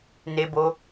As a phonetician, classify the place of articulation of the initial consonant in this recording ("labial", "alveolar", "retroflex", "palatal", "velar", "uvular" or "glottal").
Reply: alveolar